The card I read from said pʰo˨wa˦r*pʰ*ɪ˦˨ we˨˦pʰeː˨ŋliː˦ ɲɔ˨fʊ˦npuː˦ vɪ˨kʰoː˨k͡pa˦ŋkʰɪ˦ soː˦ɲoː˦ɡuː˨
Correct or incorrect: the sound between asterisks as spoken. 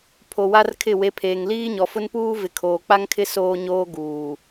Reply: incorrect: kʰ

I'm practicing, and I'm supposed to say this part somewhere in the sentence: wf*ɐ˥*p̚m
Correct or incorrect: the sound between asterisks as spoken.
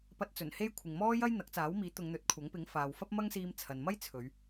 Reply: correct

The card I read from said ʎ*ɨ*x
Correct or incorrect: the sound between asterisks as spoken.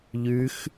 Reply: incorrect: ʉ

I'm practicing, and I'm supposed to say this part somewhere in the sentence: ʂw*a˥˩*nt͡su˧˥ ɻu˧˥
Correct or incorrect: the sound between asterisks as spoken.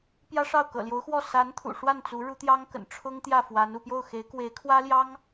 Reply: correct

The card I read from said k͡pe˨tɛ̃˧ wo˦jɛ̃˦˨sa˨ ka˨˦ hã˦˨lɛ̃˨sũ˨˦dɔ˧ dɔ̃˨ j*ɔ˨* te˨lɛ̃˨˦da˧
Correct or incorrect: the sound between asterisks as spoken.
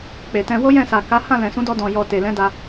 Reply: correct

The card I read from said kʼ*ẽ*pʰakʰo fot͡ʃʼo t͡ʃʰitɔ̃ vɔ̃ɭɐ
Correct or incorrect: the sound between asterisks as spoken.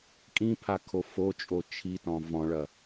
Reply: incorrect: ĩ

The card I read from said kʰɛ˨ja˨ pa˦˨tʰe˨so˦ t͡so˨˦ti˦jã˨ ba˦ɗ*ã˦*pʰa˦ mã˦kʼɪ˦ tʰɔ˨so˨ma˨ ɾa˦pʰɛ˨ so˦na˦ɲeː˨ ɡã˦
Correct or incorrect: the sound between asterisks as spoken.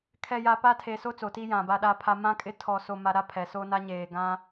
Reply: incorrect: a˦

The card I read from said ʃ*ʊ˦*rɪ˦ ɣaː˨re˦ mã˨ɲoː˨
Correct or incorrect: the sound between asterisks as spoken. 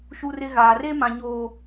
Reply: incorrect: u˦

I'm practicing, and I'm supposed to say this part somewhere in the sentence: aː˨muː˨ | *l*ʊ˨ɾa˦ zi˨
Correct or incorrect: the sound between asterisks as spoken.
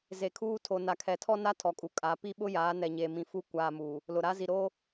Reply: correct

